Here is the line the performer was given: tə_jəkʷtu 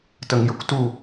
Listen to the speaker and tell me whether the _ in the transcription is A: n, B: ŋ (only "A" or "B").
B